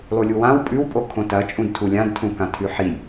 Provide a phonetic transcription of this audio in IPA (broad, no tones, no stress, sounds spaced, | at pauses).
lˠ u lʲ u w ã w pʼ ʉ w pʼ o kʰ õ t ɐ t͡ʃʼ ũ d tʰ u lʲ ã d tʰ ũ k ã tʰ ʉ ħ i lʲ